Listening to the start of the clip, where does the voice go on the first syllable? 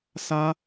high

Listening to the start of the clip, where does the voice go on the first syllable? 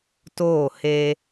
falling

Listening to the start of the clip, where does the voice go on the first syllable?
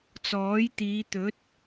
rising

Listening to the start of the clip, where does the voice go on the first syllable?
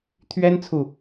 high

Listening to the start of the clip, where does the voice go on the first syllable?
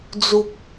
low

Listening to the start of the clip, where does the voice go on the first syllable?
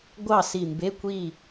falling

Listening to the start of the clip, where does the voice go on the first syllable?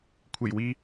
low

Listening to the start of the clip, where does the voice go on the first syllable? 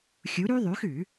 rising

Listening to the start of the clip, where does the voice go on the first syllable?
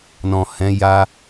low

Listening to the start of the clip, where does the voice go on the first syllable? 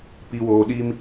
low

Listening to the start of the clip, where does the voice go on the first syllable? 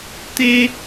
high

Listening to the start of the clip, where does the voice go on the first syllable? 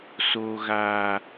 low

